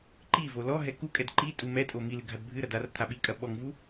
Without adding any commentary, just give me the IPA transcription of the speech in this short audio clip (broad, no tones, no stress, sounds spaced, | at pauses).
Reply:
ǃ i v o l ɔ ɦ ɛ k u kʼ ɛ d ǃ i tʼ u m ɛ tʼ o m i l ɨ ɡʱ a d bʱ ɨ ɾ ɐ d a r tʰ a ɓ i kʼ ɐ ɓ ɔ ŋ v u